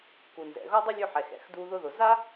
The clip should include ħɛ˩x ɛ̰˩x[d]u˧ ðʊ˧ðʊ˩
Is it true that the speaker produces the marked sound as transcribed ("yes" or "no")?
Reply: yes